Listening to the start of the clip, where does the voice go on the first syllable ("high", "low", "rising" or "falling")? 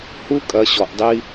high